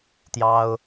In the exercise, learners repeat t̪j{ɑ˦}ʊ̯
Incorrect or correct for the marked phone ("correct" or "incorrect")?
correct